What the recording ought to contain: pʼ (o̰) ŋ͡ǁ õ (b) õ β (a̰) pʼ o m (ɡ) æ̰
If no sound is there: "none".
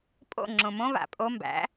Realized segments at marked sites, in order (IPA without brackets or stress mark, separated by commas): o̰, m, a̰, b